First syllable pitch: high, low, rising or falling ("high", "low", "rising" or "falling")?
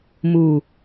low